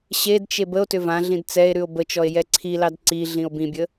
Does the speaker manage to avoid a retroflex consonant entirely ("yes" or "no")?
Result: yes